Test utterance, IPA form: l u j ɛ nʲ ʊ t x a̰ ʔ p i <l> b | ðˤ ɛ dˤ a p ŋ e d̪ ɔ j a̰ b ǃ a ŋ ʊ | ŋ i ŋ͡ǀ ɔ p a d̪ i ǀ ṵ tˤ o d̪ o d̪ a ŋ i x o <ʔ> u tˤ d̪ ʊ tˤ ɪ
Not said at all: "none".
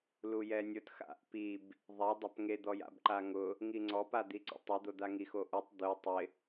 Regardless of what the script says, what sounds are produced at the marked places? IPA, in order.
none, ʔ

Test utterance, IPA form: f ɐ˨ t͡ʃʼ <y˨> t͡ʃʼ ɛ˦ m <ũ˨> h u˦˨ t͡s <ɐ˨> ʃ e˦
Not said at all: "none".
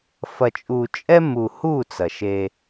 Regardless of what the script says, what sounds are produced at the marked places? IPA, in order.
u˨, u˨, ɐ˨

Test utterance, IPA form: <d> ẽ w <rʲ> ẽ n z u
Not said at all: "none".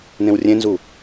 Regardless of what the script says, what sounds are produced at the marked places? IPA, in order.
n, rʲ

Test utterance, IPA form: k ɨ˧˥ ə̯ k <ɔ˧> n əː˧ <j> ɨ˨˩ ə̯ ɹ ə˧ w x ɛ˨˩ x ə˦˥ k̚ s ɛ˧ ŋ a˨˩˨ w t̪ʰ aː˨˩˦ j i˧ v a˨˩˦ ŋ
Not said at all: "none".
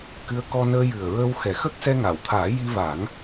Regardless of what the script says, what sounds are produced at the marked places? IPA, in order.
ɔ˧, j

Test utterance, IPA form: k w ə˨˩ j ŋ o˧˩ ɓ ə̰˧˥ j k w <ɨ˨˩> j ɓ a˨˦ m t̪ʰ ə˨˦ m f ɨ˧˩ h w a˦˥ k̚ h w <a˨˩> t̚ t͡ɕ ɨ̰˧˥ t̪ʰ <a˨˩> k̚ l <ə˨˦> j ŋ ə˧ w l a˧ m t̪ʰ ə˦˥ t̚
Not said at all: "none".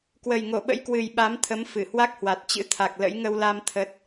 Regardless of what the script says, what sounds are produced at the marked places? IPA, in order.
ɨ˨˩, a˨˩, a˨˩, ə̰˧˥

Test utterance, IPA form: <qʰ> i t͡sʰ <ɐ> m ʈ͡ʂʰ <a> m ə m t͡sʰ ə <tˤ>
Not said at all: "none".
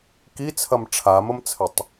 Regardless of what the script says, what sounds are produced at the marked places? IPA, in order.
k, ɐ, a, tˤ

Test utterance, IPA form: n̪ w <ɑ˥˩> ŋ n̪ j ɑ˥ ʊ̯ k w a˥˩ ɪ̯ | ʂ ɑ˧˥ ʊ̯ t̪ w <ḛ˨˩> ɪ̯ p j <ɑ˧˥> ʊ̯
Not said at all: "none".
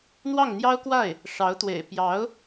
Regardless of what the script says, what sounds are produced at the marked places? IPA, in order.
ɑ˥˩, ḛ˨˩, ɑ˧˥

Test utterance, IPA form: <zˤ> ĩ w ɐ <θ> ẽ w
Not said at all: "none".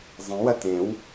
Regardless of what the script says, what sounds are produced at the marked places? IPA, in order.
zˤ, t

